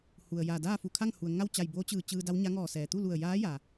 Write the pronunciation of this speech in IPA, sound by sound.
hu˩ə̯ja˧˩ daː˥˨fu˧˩kʰa˥˨ŋhu˩ə̯ ŋa˥˨wt͡ɕa˧˩jboː˧˥t͡ɕɯː˧˩ t͡ɕɯː˧da˧˥wɲa˧˥ ŋɔː˧˩sɛː˩t̪u˥˨lu˧˩ə̯ jaː˧˥ja˩

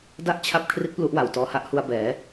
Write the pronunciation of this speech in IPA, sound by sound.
da˦˥ʔ t͡ɕʰa˥˩p̚kʰri˦˥t̚ plu˦˥ʔwa˩˦wtɔː˧ha˥˩ʔ hu˧a̯bɛː˩˦

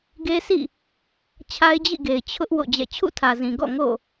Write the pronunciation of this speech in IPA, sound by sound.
ɡe˦sḭ˦˨ | t͡ɕʰa˦ɪ̯d͡ʑḭ˦˨ɡe˨ɪ̯ t͡ɕʰʊ˦ʔ wo̰˦˨d͡ʑɛ̰˦˨ t͡ɕʰṵ˦˨tʰä˨zĩ˨ ɡɔ̰˦˨ ŋo̰˦˨

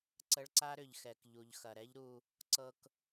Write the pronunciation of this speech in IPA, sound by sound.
ǀə˧ɭǀa˥ɾʏ˩ʎxɛ˩k ʎu˩ʎxɐ˩ɾɛ˥ʎɾu˧ | ǀɤ˧k

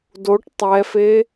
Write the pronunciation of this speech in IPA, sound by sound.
doʈ tˤɛfe

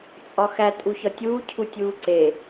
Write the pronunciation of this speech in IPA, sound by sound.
t͡sʼɒxæ tʼuçɒtʲuː cʰutʲuːǀe

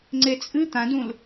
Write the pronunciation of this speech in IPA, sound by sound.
ŋ͡ǀet͡sʼɨ t̪ãdũl

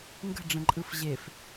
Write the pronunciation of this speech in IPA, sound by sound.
ŋɡə̤ɖ͡ʐə̃ǃʼɯf ʑef

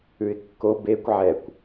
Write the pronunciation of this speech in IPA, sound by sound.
ʉɪ̯kːo bekʷ ʕɛkʷ

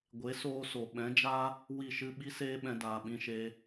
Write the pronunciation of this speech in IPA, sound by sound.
ɡʷe˨˦soː˧ so˨ ɓɛ̃˨˦d͡ʒa˦ | wi˦˨ʃɨ˦ ɓi˦seː˦ɓɛ̃˧daː˨ ɓĩ˧ʃe˧

